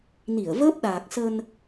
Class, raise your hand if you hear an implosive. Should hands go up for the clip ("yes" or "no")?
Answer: yes